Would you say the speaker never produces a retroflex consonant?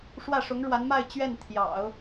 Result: no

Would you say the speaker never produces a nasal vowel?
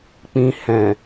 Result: no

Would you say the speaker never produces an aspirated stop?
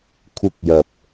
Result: no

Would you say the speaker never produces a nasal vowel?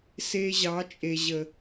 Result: yes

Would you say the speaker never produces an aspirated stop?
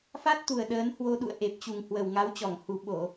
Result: yes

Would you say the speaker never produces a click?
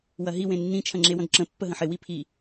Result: no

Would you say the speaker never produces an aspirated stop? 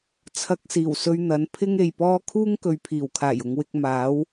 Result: no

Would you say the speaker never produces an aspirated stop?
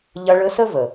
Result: yes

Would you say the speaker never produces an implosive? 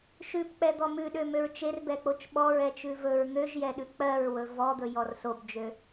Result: no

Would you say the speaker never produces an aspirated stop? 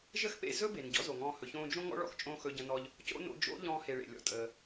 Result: yes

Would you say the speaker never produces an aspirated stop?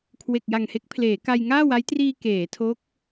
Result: no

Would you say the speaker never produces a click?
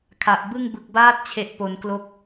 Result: yes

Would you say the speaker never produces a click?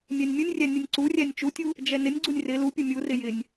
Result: no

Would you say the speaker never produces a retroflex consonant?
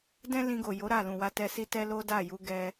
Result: yes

